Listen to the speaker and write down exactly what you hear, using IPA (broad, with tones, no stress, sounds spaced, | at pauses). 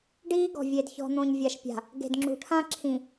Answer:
ɖ iː˦ ɡ ɔ̤˨ vʲ e˨ d ç ɔ̤˨ n̪ õ˨ ɲ vʲ a˨ ʃ pʲ a̤˨ | ɡ e̤˨ d ŋ͡ǁ ṳ˨ ʈʰ ã˦ ǁʰ ĩ˨